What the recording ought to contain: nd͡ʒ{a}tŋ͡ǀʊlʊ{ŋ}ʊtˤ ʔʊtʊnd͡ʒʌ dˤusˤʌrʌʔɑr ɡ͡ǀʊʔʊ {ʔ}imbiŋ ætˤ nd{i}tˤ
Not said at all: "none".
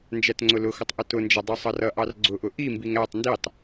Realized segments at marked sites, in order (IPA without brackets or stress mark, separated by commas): æ, x, ʔ, i